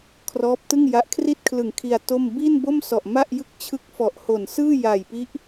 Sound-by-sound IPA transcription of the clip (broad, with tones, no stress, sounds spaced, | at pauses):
kʰ r ɔː˦˥ p̚ t ɯ˥˩ ŋ j a˦˥ ʔ kʰ r i˥˩ t̚ kʰ l ɯ˨˩ ŋ kʰ i˧ a̯ t o˥˩ m b i˥˩ n b o˥˩ m s ɔ˨˩ ʔ m a˥˩ ʔ j ɯ˥˩ k̚ t͡ɕʰ ɯ˦˥ k̚ f ɔ˨˩ ʔ h o˨˩ n s ɯː˥˩ j a˨˩ j p i˦˥ ʔ